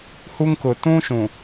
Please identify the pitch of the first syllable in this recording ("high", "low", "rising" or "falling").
high